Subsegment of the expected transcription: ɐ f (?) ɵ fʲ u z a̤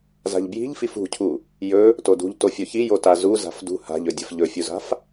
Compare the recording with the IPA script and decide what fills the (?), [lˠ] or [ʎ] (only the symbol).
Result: ʎ